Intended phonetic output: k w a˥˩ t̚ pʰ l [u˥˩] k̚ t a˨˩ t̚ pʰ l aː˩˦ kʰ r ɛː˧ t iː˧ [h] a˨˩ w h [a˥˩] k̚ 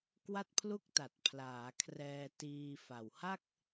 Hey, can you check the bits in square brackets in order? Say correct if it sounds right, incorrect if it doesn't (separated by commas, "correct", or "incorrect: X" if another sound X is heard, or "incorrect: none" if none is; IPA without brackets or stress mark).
correct, incorrect: f, correct